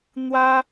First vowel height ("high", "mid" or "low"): low